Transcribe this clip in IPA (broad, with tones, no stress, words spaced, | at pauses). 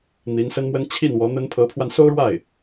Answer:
n̪i˧˥nsə˥nmwə˥n t͡ɕʰi˥˩n wɔ˧˥n̪ə˥n pʰɤ˧˥pʰwa˧nso˥ʊ̯ɻwa˥˩ɪ̯